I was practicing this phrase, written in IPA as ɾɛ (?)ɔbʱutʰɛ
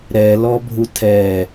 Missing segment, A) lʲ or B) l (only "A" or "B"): B